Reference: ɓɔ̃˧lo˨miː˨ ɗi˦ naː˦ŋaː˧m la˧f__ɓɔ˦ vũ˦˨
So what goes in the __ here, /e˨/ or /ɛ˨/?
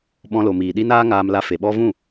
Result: e˨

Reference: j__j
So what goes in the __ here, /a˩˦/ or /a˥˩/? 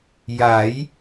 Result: a˩˦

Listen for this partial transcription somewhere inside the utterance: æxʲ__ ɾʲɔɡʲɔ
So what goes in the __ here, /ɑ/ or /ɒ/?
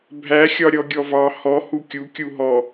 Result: ɒ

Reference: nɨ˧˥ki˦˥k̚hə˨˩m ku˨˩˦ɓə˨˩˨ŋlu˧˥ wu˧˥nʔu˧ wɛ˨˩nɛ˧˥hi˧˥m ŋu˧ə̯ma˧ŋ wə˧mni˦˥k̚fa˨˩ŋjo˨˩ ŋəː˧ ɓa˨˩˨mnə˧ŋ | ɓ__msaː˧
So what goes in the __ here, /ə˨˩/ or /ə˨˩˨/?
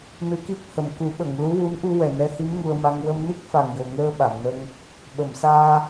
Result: ə˨˩˨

